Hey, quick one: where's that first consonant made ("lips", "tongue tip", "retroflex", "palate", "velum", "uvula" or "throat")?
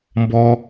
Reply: lips